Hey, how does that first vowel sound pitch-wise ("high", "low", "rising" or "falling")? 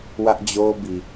high